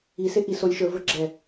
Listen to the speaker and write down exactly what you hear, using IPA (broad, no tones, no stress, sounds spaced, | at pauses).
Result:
i s e ʔ i s o lʲ ʃ ə˞ v ə˞ ɡ͡ǁ ɛ